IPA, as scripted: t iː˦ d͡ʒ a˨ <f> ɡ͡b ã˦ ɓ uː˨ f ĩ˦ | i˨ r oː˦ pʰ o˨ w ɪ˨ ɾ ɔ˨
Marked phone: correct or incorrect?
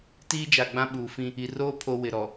incorrect